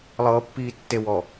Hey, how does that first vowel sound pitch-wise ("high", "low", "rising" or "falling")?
low